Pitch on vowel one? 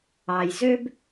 low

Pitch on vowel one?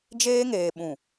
high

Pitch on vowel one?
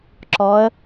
rising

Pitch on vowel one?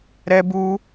high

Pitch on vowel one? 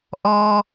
high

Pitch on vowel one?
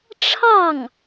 falling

